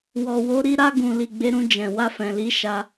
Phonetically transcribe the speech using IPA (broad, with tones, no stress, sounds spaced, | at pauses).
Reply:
w ɔ˨ w o˨˦ ɾ i˧ ɾ a˧ ɡ ũ˨ l i˨ ɡ͡b e˨˦ ɾ ũ˧ d͡ʒ ɛ̃˨ w a˧ f ɛ̃˨ l i˨˦ ʃ a˧